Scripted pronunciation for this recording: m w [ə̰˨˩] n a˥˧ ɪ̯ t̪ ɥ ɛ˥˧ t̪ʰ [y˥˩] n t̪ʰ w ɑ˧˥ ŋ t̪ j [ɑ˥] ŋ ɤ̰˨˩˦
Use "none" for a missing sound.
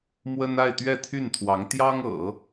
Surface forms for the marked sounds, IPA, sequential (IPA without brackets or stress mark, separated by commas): ə˥, y˥˩, ɑ˥